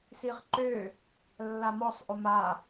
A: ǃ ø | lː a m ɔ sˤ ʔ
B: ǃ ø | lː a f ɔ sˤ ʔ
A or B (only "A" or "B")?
A